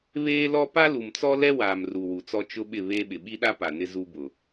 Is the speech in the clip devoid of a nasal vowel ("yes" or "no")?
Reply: yes